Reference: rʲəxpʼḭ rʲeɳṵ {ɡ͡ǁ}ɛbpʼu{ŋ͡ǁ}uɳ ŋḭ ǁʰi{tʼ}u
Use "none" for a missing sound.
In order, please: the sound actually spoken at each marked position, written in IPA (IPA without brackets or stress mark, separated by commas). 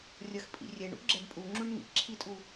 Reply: ɡ͡ǁ, ŋ͡ǁ, tʼ